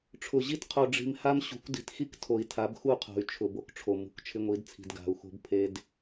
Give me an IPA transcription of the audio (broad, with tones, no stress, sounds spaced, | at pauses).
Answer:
ʈ͡ʂʰ ʊ˨ ʑ i˦ t qʰ o˨ ɖ͡ʐ i̤˨ m h a˦ m ɕ ṳ˨˦ kʷ d i̤˨ t x i˦ k tʰ o˨ i̯ tʰ a˨˦ b x u˦˨ qʰ o̤˨ y̯ t͡ʃʰ ʊ˨ b o˦ k ʈ͡ʂʰ o˨ m ṳ˨ k t͡ʃʰ ɪ˦ ŋʷ i˨˦ d t͡sʰ i̤˨ d ɡ a̤˨ u̯ x o̤˦ b pʰ e˦ d